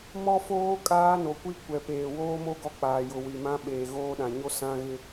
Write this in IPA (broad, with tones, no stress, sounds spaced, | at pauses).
m ɔ˦ f oː˦ kʼ aː˦ n o˨ kʷ i˦ kʷ ɛ˨ p eː˨ w oː˦ m o˦ ɡ ɔ˦ k͡p aː˨ j ʊ˨ w i˨ m ã˦ ɓ eː˨ ɣ oː˦ ɗ ã˨ ɲ o˦ s ã˦ ɣ ɪ˦